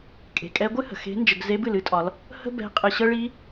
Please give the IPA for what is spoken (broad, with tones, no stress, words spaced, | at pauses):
kʼe̤˩˧kʼɛ˧˥ɡʷɨ˥hə̤˩ xe̤˧˥nd͡ʒə˩˧ɡ ze˧˥bɨ˩lɨ˥tʼɒ˩˧l | hə̤˥bɛ̤˧˥qʼə˧ ɕɤ˥ɭi˧˥